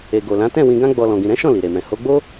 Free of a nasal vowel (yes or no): no